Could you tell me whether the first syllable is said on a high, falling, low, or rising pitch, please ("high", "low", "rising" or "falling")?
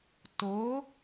rising